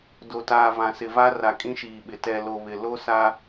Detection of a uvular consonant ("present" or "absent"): absent